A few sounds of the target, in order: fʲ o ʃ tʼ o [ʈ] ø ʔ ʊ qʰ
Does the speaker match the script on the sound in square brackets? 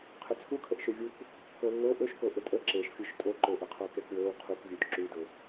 no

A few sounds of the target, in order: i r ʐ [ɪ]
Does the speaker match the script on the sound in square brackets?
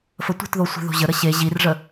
no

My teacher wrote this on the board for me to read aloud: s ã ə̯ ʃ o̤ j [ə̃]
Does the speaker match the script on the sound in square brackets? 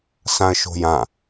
no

